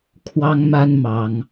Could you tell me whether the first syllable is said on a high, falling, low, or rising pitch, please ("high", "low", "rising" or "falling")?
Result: high